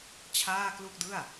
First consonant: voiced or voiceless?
voiceless